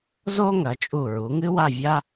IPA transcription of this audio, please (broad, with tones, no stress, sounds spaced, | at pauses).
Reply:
z o˥ ŋ ɐ˩˧ t͡ʃʼ u˧˩ ɹ u˩˧ ŋ ɨ˥ w a˥˧ vʲ a˥